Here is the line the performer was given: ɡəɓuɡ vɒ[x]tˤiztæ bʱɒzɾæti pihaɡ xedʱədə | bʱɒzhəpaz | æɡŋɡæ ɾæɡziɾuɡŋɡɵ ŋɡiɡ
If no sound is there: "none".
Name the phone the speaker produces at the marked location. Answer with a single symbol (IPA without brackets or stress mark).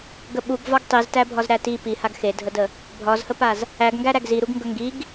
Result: ɡ